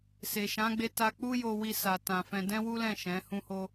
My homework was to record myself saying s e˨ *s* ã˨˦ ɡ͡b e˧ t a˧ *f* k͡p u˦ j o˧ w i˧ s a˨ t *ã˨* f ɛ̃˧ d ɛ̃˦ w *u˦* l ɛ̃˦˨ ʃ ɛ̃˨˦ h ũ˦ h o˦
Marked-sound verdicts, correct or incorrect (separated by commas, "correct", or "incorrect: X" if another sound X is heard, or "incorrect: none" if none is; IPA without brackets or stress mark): incorrect: ʃ, incorrect: none, correct, correct